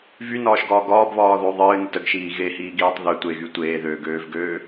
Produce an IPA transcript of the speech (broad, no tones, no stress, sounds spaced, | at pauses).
v y n ɒː ʃ ɡ ɒː ɡ ɒː b β ɒː ð o ðˤ ɨː n ə t ə ɡ ʃ iː ɣ e h iː ɡ iː tˤ ð ø tʷ e ɣ y tʷ eː ð øː ɡ øː v ɡ øː